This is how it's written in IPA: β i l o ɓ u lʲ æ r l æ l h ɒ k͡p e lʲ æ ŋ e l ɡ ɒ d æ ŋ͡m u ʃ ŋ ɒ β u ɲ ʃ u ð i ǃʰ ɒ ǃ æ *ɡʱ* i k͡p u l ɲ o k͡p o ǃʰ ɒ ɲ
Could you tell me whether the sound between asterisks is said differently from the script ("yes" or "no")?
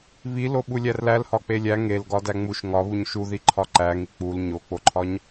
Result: yes